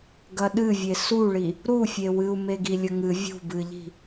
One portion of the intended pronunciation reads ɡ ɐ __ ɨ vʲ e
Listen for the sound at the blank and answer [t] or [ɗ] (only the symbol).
ɗ